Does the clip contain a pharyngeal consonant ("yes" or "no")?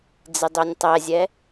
no